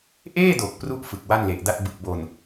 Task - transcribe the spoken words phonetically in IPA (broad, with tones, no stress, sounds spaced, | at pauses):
ʔ eː˥˩ d o˨˩ k̚ p r u˥˩ ʔ f ɯ˨˩ k̚ w a˥˩ n l e˨˩ ʔ d a˥˩ t̚ b ɯ˨˩ k̚ b o˨˩ n